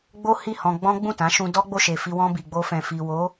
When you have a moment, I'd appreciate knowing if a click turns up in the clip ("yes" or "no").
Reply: no